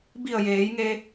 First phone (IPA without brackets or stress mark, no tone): b